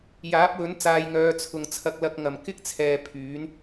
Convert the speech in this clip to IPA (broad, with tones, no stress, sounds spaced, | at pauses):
j aː˨˥ p̚ w ɵ˨˥ n t͡s aː˧ j ŋ œː˧ t͡sʰ ʊ˨ ŋ t͡sʰ ɐ˧ k̚ l ɐ˧ k̚ ŋ ɐ˨˩ m k ɪ˥ k̚ t͡sʰ ɛː˨ pʰ yː˨˥ n